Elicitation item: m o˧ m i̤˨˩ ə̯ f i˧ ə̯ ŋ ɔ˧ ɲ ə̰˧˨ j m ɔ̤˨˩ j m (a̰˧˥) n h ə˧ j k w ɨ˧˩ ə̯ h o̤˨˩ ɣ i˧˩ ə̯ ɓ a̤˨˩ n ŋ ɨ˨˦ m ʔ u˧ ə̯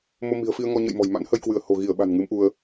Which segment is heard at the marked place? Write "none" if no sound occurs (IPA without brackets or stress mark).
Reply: a̰˧˥